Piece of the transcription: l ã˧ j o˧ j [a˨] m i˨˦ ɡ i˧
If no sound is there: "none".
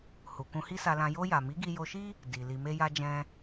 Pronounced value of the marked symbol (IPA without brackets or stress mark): a˨